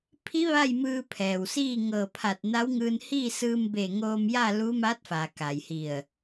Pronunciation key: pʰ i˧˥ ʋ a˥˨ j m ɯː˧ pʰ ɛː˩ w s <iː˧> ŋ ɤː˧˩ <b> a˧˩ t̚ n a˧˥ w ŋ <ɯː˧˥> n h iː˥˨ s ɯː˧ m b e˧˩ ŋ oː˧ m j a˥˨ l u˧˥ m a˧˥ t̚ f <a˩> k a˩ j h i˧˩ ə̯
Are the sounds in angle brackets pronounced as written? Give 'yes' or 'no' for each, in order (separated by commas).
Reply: no, no, no, yes